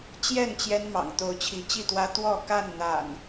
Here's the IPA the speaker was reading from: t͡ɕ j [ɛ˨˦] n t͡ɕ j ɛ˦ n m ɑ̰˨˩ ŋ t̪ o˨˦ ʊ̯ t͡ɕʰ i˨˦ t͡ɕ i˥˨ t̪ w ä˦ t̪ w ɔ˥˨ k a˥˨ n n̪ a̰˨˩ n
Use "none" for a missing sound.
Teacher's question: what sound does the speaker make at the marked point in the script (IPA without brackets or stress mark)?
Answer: ɛ˥˨